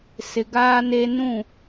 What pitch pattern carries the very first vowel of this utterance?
low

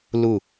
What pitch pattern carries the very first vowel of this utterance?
falling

